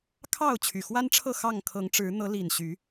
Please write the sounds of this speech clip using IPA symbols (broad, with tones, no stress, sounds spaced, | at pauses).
kʰ ɑ˥˨ ʊ̯ t͡ɕʰ y˨˩ x w a˦ n ʈ͡ʂʰ ɤ˥˨ x ɑ˥˨ ŋ kʰ ɤ˨˦ ŋ ʈ͡ʂ ɻ̩˨˦ n̪ ɤ˨˦ l i˨˩ n ɕ y˨˦